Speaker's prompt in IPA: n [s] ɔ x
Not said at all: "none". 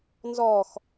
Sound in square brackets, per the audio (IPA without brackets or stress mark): z